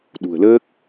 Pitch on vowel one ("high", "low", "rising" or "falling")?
low